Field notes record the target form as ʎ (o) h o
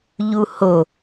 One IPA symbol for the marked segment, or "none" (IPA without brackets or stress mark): u